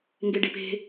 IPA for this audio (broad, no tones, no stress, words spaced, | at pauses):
ŋɡeɖipe̤